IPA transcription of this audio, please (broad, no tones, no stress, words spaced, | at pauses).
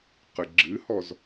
qɨɡ͡ǁɨhɔz